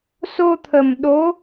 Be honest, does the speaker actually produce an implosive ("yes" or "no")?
yes